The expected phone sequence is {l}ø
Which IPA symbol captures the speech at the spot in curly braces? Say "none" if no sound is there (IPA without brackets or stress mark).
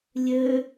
lʲ